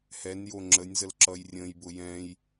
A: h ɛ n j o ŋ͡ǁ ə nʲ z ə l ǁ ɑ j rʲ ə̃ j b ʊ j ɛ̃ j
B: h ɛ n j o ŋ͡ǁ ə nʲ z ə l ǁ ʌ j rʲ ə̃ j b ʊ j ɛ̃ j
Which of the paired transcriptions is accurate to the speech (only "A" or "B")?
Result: B